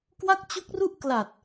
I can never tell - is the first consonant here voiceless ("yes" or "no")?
yes